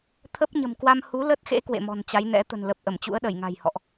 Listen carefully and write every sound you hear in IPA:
t̪ʰə˦˥p̚ɲə̤˨˩mkwa˧m hu˨˦lə˦˥t̚xḛ˧˥ kwḛ˧˨mɔ̤˨˩nt͡ɕa˨˦jnɛ̰˧˥ t̪ə̤˨˩nlə˨˩p̚ ʔə˧˩mt͡ɕṵ˧˥ə̯ɗə˧˩j ŋa̤˨˩jhɔ̰˧˨ʔ

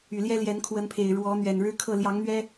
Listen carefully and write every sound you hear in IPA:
y˨˩ ljɛ˦ljɛ˨˦nkʰwə˨˦npʰe˨˩ɪ̯ ɻwɔ˨˦n̪ɥɛ˨˩nɻɻ̩˦kʰɤ˥˨ ljɑ˨˦ŋn̪ɥɛ˦

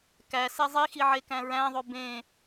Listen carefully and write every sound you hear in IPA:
kæ sezˤixi ʕekæ̃ɹæ̃ðˤo bẽ

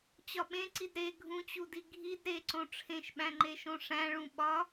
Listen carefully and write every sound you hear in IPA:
t͡ɕɒɓẽǀid ɾe ɡʱũt͡ɕudi ɡʱid ɾeǀõ ʈ͡ʂʰẽʃɓæ̃ŋ͡ǃeʃõ ʂæ̃ɭũ ɓɒ

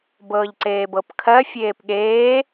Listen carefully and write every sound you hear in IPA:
bɤːʎǀeːbɤpkʰɜ fʲeːpɠeː

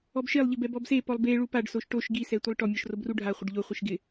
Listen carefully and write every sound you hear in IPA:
ɔbʃelˠʎɪb ɛbɔbsepɔlˠ be ɭupaɖsoʃ ʈoʃ ɡisɛ tʷelˠʈɔmʲɔʃ robruɖʱaχʷɪɖ ʎoχʷiʃ ɡɪ

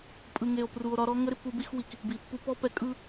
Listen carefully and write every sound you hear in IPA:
pʼɯ˨ŋe˨o̯pru˨o̯ ɾɒ˦ɾɔ˦ ŋə˦ɾɪ˨pːu˦bi˦x wi˨k | bi˨pːu˦ pɔ˦pɛ˨ kʼɯ˦

